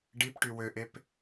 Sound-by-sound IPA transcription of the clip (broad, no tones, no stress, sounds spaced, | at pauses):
ɖ i p ʈ y w ø ʔ e p